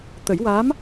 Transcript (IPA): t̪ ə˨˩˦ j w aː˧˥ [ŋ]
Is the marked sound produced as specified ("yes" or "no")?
no